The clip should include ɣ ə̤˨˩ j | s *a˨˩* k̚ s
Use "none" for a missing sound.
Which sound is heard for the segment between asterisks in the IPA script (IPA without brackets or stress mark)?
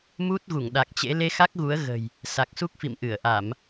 a˨˩